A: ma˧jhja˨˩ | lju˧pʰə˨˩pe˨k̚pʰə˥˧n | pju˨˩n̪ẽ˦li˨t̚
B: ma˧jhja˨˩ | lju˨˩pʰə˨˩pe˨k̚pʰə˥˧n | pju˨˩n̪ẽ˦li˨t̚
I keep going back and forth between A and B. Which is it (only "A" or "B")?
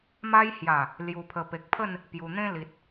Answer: B